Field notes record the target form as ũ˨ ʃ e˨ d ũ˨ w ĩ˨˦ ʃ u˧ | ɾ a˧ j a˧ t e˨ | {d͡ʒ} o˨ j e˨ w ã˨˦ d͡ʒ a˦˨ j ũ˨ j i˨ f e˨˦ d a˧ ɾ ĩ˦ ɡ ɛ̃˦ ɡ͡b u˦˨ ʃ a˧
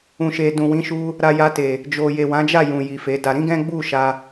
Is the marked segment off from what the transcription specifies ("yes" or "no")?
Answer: no